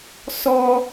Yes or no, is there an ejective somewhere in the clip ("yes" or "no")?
no